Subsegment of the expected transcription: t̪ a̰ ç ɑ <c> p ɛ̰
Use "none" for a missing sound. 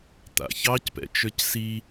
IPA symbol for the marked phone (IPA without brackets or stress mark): c